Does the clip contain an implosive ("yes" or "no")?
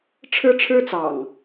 no